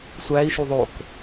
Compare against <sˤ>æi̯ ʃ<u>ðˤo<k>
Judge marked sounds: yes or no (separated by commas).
no, yes, yes